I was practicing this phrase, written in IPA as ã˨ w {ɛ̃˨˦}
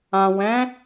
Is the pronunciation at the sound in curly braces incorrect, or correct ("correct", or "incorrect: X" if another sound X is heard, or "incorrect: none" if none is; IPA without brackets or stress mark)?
correct